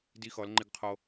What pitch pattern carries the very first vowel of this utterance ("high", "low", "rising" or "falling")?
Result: high